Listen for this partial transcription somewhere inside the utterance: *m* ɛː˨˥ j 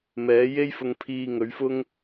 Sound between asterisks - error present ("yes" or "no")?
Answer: no